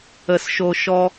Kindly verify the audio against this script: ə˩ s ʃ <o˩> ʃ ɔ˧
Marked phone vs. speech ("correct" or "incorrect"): correct